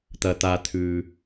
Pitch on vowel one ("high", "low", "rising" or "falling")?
low